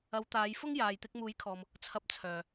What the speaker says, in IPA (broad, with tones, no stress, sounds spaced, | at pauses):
ɐ˨˧ w t̪ aː˨˧ j f ʊ˥ ŋ j aː˨ j t̪ ɪ˧ k̚ m uː˨˥ j kʰ ɔː˨ m | t͡sʰ ɐ˧ p̚ t͡sʰ œː˨